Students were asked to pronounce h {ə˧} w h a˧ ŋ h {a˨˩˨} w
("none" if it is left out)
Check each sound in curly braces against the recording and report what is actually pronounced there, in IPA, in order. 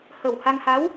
ə˨˩, a˧˥

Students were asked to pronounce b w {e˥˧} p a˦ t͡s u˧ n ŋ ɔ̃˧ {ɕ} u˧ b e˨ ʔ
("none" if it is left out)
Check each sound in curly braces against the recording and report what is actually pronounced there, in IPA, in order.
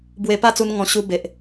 e˧, ɕ

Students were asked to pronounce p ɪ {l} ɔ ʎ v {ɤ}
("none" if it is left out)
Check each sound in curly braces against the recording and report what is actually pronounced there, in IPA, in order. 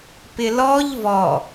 l, ɔ

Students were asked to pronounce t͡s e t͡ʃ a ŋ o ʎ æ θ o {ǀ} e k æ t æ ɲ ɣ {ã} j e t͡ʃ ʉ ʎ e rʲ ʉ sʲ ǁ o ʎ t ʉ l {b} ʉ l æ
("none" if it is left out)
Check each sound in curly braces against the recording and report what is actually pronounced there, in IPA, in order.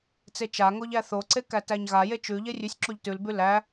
ǀ, a, b

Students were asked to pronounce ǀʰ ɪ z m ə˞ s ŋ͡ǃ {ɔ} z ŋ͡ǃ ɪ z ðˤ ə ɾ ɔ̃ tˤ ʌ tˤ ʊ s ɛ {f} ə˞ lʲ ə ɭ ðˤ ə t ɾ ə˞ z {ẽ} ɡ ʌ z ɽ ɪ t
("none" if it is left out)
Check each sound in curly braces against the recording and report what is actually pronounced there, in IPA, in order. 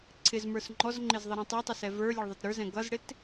ɔ, v, ɛ̃

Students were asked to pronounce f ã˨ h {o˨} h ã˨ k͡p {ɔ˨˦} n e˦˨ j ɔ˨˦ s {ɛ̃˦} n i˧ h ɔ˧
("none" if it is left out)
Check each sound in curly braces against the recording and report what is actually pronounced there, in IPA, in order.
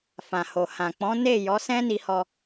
o˨, ɔ̃˨˦, ɛ̃˦

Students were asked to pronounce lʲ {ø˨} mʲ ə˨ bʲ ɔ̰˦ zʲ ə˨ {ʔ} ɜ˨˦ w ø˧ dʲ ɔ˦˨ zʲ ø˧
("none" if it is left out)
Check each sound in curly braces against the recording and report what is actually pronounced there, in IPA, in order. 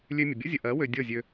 ø˧, ʔ

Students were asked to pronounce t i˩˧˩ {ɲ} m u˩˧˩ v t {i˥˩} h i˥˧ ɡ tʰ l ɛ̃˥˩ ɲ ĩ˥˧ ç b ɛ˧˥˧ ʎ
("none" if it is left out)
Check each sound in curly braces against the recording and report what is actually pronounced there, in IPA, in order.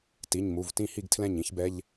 ɲ, ĩ˥˩

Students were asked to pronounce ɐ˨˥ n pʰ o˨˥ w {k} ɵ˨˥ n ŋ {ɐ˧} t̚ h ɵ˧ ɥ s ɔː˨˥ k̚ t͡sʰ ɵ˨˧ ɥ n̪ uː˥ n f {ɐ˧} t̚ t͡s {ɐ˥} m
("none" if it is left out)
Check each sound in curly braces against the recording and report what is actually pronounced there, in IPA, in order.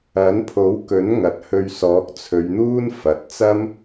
k, ɐ˨˥, ɐ˨, ɐ˥

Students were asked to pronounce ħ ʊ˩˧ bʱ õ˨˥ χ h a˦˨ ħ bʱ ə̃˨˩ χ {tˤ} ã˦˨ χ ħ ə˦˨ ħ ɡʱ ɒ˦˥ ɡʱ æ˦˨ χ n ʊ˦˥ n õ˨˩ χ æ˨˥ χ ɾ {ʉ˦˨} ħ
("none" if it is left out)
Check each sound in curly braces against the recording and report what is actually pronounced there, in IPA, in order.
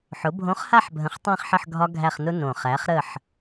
tˤ, ə˦˨

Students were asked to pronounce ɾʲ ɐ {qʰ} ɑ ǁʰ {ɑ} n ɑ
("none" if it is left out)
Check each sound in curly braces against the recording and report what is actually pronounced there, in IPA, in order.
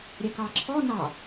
k, ɔ

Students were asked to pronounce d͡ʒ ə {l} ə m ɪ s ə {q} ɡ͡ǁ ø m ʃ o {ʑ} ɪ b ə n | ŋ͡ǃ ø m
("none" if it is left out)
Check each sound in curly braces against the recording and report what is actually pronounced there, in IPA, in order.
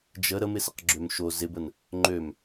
ɾ, q, z

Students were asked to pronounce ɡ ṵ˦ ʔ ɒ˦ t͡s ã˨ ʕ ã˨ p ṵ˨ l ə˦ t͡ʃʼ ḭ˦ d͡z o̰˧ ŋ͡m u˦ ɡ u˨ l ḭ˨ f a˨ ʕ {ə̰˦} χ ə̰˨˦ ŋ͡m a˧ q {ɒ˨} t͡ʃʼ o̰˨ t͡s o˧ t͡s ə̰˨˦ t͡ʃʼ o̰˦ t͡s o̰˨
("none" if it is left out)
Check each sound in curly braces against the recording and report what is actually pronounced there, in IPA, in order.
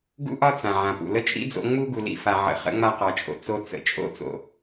ə̰˨, ɒ˨

